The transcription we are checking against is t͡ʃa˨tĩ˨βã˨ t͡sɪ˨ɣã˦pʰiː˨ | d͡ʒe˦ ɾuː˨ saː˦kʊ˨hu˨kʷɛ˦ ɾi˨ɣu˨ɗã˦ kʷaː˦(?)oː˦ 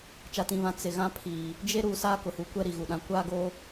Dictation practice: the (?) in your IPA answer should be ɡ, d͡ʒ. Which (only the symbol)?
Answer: ɡ